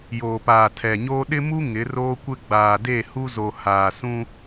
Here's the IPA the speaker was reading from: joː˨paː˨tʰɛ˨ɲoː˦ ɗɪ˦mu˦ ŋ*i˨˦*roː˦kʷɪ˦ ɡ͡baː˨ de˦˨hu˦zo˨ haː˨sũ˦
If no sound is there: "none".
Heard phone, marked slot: ɪ˨˦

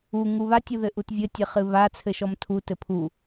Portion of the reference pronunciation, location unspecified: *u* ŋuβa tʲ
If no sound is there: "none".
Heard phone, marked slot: u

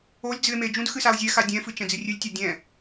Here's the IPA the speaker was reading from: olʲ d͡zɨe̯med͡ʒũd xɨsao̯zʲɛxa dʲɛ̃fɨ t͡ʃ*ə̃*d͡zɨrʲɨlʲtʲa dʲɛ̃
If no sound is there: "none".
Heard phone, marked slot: ɛ̃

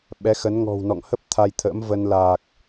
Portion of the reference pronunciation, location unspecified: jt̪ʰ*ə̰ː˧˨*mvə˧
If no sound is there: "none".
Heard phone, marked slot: ə̰ː˧˥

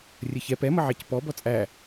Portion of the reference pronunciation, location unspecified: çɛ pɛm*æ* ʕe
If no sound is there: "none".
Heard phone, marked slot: ə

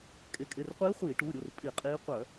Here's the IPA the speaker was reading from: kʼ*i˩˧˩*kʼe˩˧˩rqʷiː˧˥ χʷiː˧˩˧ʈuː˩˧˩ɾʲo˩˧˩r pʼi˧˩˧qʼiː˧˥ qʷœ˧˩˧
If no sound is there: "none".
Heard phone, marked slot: e˩˧˩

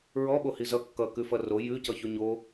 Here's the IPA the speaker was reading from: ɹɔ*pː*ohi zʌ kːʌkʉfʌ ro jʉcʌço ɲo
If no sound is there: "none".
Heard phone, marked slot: ɓ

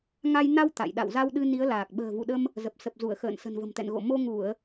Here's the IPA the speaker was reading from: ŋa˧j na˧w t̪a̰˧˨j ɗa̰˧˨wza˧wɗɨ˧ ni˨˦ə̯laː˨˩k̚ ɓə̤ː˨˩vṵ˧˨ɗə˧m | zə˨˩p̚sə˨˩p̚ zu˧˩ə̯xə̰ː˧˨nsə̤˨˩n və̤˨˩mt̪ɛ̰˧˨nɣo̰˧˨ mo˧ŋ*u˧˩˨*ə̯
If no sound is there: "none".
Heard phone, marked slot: u˧˩˨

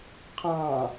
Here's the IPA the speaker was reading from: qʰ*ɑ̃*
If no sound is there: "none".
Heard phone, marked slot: ɑ̃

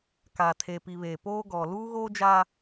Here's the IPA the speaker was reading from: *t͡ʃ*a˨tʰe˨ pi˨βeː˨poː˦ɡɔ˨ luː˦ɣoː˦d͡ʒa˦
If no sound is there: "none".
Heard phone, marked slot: k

